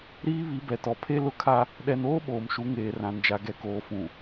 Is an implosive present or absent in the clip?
present